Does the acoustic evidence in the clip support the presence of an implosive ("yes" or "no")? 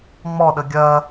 yes